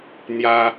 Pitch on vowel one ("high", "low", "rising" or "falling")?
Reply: high